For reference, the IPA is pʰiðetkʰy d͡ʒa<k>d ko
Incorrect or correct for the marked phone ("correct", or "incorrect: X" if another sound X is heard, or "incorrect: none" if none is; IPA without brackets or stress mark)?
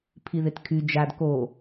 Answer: incorrect: none